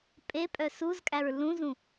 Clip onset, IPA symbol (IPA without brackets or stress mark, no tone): pʼ